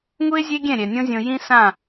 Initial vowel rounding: rounded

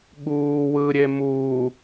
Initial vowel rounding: rounded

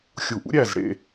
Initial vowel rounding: rounded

